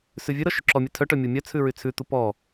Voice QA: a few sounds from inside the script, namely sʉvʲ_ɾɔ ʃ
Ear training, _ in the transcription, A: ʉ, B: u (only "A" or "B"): A